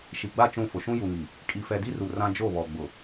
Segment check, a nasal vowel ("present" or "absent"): present